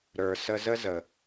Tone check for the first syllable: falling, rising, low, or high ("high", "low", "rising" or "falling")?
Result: low